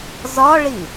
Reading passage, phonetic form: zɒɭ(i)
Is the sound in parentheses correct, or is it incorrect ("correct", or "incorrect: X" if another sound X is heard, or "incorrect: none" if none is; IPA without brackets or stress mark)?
correct